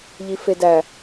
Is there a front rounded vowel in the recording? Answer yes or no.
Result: no